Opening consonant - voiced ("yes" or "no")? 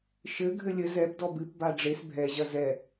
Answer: no